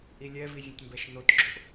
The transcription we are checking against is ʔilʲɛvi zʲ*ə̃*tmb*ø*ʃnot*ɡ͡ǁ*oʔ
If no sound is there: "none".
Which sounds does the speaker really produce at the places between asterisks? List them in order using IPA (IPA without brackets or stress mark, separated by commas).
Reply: ə̃, ɛ, ɡ͡ǁ